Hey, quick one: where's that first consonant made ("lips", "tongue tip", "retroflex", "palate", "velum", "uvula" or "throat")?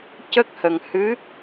palate